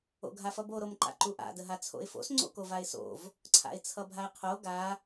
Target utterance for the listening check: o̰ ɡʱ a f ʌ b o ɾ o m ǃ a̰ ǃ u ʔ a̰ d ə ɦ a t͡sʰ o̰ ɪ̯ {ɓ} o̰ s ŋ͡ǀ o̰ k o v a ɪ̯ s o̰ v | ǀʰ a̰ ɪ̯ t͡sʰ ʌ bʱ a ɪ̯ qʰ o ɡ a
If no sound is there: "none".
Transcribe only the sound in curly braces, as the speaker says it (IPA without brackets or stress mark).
f